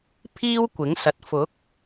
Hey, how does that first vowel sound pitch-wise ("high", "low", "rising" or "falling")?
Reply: high